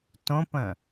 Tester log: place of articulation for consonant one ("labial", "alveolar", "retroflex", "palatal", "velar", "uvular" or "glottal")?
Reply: alveolar